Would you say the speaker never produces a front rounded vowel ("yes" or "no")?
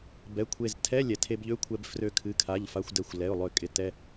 no